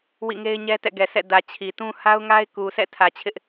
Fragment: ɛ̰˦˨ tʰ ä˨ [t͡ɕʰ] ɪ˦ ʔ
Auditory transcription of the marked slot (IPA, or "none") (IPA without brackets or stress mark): t͡ɕʰ